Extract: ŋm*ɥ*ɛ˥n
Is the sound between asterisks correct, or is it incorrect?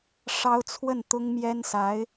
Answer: incorrect